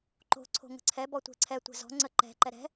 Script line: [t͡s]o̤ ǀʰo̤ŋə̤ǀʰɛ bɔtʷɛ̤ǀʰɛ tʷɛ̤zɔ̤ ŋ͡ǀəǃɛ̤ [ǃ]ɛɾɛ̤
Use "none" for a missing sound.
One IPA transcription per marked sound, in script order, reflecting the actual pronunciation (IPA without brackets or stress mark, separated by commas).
ǃ, ǃ